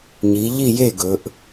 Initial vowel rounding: unrounded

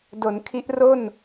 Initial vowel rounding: rounded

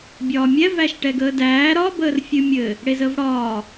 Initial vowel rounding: rounded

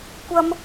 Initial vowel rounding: unrounded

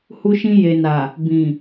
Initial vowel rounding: rounded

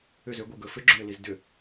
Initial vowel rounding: rounded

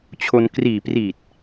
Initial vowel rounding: rounded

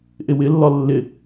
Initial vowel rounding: unrounded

